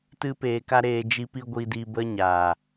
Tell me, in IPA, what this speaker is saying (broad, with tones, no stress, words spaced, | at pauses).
tɨ˦peː˧ka˦ ɾeː˧ d͡ʒi˧pi˧ ɡʷi˧di˧ bə˦ɲa˨